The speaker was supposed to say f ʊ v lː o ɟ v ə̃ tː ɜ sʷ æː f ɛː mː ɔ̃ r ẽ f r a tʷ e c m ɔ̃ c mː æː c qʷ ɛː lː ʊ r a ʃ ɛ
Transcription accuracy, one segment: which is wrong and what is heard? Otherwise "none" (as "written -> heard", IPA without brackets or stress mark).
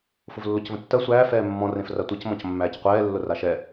ɟ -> c